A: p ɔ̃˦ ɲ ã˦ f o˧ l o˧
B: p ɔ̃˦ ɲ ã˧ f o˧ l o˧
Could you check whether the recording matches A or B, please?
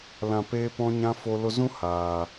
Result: A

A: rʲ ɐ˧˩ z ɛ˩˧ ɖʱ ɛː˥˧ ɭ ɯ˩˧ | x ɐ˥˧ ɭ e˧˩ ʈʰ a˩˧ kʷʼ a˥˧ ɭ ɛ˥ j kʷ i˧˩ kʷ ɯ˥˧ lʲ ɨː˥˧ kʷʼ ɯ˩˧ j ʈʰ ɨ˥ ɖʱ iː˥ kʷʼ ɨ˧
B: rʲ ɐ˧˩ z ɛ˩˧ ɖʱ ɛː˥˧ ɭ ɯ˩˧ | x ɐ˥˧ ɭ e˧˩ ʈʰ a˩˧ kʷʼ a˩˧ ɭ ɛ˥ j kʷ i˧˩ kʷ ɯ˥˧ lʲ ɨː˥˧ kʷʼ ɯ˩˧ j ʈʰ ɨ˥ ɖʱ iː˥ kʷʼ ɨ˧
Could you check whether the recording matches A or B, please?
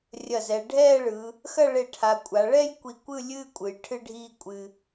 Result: B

